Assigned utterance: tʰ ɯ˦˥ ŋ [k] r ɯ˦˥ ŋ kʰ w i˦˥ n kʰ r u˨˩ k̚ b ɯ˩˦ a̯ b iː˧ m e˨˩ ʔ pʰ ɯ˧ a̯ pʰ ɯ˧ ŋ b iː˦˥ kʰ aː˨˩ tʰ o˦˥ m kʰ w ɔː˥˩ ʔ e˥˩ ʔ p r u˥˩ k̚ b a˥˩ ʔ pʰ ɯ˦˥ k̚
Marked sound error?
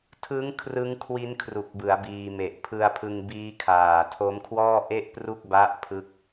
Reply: yes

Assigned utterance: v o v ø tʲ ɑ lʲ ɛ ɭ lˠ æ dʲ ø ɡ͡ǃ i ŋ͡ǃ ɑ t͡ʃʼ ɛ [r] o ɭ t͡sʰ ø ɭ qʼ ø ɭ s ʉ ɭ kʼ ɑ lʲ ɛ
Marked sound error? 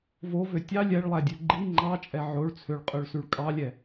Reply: yes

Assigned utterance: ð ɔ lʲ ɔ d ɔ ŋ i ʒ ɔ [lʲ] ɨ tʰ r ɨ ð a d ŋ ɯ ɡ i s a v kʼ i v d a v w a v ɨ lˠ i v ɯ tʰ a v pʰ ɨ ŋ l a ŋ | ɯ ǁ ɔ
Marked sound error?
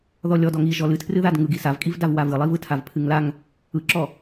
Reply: yes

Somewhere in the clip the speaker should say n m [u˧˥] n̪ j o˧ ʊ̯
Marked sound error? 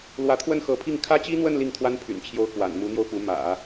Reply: no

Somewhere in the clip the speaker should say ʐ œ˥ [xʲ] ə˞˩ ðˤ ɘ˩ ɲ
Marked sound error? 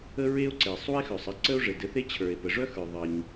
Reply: yes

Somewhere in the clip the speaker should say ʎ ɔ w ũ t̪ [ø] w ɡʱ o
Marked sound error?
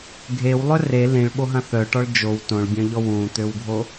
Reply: no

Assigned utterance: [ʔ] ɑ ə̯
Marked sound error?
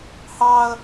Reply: yes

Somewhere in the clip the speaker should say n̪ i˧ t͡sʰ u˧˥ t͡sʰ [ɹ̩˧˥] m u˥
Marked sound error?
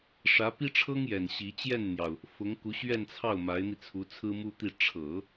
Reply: yes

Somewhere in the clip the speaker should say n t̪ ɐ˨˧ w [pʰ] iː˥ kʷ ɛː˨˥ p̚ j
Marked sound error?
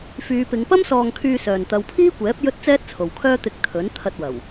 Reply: no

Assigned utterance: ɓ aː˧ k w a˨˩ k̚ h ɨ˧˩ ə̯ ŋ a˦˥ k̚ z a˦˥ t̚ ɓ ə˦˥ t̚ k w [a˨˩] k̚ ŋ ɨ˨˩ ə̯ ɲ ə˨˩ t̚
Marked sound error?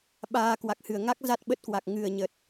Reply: no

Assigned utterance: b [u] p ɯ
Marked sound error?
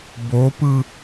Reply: yes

